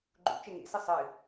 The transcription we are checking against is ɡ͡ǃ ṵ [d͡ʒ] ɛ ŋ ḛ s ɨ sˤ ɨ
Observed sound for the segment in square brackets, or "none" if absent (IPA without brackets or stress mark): t͡ʃ